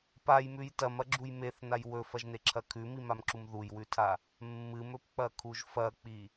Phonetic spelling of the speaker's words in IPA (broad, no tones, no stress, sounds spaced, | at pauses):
p a j m ʉ j t ɐ m ɐ ɡ͡ǁ u j m e θ n a j w ɵ f ɐ ʒ n e ǁʰ ɐ kʰ ʉ m i m a m ǁ u m ð u j w ʉ tʰ a | mː ɨ m ɵ p k͡p ɐ kʰ u ʒ f ɐ k͡p i